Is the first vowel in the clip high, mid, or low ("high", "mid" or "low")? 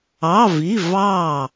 low